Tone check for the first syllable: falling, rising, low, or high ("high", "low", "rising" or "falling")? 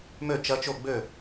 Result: falling